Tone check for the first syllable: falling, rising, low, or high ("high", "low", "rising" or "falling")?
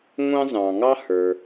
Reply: high